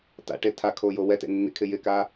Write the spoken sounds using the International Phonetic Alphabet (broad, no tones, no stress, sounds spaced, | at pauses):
t a̰ ʈ e tʰ a kʰ o j o w ɛ t ḛ nː ḭ kʰ ɪ j ɪ k a